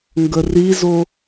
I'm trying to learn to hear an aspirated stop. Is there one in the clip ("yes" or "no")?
no